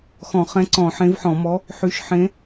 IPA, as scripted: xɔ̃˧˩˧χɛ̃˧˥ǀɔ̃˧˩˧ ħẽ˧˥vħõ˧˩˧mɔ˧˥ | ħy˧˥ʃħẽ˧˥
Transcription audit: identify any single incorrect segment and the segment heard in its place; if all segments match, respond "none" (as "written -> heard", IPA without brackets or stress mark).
õ˧˩˧ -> ɔ̃˧˩˧